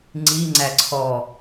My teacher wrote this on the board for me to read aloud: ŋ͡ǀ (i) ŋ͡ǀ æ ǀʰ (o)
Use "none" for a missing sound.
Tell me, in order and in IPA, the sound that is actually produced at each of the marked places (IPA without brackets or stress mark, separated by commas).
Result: i, ɔ